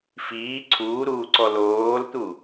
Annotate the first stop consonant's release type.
click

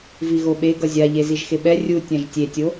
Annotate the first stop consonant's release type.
implosive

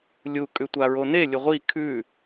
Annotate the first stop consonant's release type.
ejective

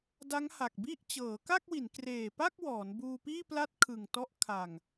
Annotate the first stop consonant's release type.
plain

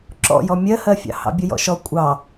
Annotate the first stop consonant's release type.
click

